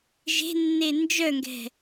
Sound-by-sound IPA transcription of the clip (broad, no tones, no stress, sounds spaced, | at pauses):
ʒ e̤ nː e n d͡ʒ œ ŋ ɡ ɛ̤